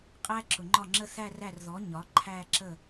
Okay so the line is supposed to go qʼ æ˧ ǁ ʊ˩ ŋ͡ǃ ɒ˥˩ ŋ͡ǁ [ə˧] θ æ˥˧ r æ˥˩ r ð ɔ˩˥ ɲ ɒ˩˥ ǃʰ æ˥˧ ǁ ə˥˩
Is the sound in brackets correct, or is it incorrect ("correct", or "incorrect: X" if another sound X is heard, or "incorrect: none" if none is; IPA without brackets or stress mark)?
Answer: incorrect: ə˥˧